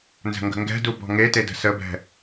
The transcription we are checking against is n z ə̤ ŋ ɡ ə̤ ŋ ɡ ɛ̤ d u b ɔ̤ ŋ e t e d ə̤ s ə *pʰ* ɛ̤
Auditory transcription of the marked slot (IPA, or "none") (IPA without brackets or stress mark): b